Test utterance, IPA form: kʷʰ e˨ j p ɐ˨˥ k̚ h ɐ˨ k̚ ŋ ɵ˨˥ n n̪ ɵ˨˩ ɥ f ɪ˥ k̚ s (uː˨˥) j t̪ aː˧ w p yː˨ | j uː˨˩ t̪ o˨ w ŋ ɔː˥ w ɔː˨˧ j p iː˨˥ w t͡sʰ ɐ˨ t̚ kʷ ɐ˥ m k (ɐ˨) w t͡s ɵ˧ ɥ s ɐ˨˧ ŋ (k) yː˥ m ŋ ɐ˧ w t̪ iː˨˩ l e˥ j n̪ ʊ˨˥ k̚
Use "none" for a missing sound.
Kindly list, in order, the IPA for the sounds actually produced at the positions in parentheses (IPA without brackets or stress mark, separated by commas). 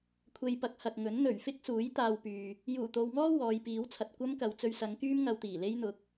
uː˨˥, ɐ˨, k